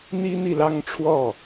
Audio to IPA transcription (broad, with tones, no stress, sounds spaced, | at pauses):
n̪ i˥ n̪ i˨ l ɑ˥˧ ŋ ʈ͡ʂʰ w ɔ˥˩